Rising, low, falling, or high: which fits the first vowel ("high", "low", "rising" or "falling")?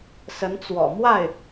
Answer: rising